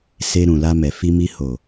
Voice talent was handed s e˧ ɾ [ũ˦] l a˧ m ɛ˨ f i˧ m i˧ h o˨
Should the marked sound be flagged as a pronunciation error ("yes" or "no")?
yes